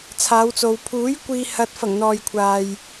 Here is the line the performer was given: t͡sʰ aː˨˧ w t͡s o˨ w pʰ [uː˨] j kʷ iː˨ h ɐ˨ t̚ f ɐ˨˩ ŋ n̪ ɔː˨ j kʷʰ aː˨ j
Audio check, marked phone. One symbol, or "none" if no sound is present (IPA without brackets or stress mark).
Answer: uː˨˥